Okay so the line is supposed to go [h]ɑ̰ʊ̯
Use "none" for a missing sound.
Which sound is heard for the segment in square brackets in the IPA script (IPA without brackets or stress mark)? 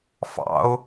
f